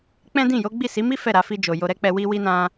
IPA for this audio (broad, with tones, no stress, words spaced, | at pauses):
k͡pɛ̃˦dĩ˦˨jo˨˦ ɡ͡bi˦˨si˨˦mi˦ fɛ˦˨ɾa˧fi˧d͡ʒo˨ jo˧ɾɛ˦k͡pɛ˧ wi˧wi˧nã˧